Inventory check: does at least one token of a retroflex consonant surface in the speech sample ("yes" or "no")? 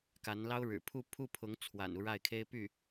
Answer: yes